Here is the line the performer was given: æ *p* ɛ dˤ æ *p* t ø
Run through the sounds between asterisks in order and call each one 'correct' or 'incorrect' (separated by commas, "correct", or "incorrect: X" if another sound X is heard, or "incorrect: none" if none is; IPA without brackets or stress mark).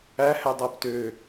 incorrect: h, correct